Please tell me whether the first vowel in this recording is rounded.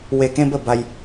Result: no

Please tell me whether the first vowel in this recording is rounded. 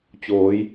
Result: yes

